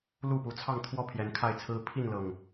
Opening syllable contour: falling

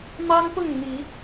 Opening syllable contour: high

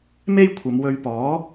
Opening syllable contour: high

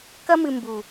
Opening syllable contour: high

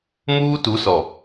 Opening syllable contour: high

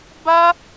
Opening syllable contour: high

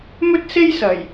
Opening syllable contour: high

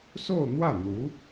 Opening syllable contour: falling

